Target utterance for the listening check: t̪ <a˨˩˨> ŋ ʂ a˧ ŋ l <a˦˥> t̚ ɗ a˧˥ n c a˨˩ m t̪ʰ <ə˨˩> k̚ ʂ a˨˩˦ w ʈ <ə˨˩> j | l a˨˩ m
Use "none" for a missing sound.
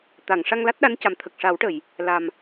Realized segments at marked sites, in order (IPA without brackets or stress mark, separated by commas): a˨˩˨, a˦˥, ə˨˩, ə˨˩˨